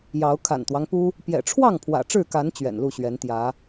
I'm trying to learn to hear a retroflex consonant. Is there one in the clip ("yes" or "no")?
yes